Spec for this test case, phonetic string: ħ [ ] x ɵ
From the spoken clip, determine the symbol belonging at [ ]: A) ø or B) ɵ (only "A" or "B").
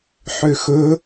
A